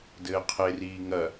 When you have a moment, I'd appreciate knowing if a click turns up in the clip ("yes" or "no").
no